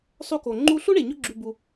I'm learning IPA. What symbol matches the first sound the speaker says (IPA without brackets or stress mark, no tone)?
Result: sˤ